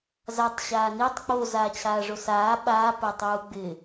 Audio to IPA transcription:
zatˤ ɕaːnitˤ k͡po zaːt͡ɕʰaːʐosaː ɓaː pɛtˤuːɡ͡bɪ

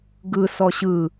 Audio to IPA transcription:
ɡɯ sɔɕɯ

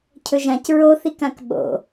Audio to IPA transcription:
cʰɵʒãc ɹoθikãk ɓo̰

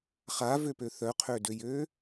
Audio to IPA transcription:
χavøpø θœqʰødøjø

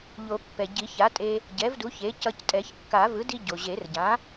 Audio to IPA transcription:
ʎo˨˩˦ pːɛ˩ ɟi˨˩˦ça˩˥tʼe˧ | ɟɛ˩˥vdu˩˥ç e˩˥cʌ˧ctʼɛ˨˩˦ç kːa˨˩˦ vɯ˩˥di˧ ɟo˩ʑe˨˩˦rɟã˩˥

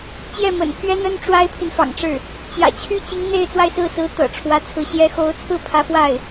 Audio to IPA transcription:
t͡ɕjɛ˥˩mə̰˨˩npʰɥɛ˥n̪ə˥n ʈ͡ʂwa˥ɪ̯pʰi˨nfɑ̰˨˩ŋʈ͡ʂɻ̩˥˩ | t͡ɕjä̰˨˩t͡ɕʰy˥t͡ɕi˧˥ŋ n̪e˥˧ɪ̯t͡swa˥˧ɪ̯sɹ̩˥˩sɹ̩˧˥ t̪ɤ̰˨˩ʈ͡ʂʰwä˧˥t͡sʰɹ̩˧˥ ɕjɛ˧˥xo˧˥ʊ̯ t͡sʰɹ̩˥˩pʰä˧˥fwa˥˩ɪ̯

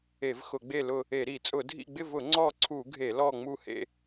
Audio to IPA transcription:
e˧˩˧vxʊ˧˩˧ɡ͡be˦˨lʊ˦˨ | e˧˩˧ɾi˧˩˧t͡sʼʊ˧˩˧dʱḭ˦˨ ɡ͡bɪ˦˨vʊ˧˩˧ ŋ͡ǀɔ˦˨ǀʰu˧˩˧ ɡʱe˧˩˧lɔ˦˨ ŋ͡mu˦˨hḛ˦˨

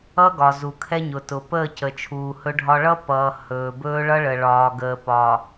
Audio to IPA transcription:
ʌ˦ ɡɒ˨zu˨kʰɛ˦ɲʊ˨ tʊ˨ pəː˦˨cə˨t͡ʃʰuː˨ hɵ˦ɖʱɒ˦ ɭʌ˦pʌː˨ hɵː˨bɵː˦ ɭʌ˦ɭə˨ ɭɒː˨ ɡəː˨pɒː˨

